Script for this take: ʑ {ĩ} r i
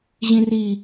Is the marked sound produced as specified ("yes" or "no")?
yes